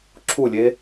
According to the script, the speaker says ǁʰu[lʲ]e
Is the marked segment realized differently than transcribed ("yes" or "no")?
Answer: no